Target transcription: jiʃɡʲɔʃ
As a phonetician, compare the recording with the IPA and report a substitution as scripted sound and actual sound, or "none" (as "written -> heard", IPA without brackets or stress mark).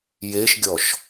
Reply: i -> e